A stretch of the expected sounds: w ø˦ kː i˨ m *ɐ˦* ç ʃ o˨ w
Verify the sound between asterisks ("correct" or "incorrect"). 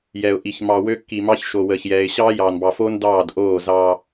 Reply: incorrect